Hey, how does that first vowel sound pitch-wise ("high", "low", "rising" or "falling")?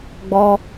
high